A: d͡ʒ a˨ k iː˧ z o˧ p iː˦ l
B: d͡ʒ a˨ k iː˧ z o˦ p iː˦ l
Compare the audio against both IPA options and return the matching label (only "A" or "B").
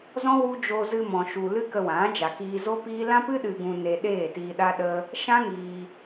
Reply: B